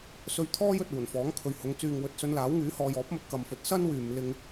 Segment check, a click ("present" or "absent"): absent